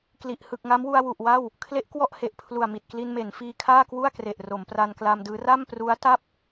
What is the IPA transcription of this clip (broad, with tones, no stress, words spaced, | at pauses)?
kli˨˩ʔ hɯ˨˩k̚ŋa˦˥mwu˧a̯ wu˨˩ʔ wa˥˩w | kʰle˦˥ʔkwɔ˥˩ʔhe˨˩ʔ pʰlu˨˩a̯mi˨˩t̚kli˧nme˩˦n fiː˧kʰaː˥˩kwu˥˩a̯kre˨˩ʔ ro˩˦mpra˧nkla˧mdɯː˦˥ ra˥˩mpru˦˥a̯ ta˥˩p̚